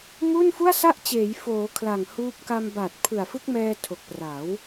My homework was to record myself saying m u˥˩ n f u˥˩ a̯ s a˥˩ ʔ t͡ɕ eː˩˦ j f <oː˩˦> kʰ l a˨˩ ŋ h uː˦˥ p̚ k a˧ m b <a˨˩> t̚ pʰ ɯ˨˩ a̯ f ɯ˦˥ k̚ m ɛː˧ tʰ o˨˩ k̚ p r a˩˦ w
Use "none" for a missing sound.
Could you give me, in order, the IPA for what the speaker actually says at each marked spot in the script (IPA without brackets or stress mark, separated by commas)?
oː˩˦, a˨˩